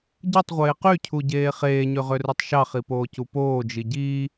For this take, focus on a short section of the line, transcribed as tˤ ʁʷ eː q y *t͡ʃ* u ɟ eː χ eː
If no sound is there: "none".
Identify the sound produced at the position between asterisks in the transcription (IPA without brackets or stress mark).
cʰ